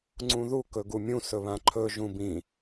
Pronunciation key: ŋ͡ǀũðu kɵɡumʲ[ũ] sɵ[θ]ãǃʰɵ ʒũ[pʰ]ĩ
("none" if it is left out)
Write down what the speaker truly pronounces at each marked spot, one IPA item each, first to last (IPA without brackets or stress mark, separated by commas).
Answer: ũ, β, b